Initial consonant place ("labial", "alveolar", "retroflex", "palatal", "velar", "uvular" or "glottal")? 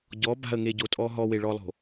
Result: palatal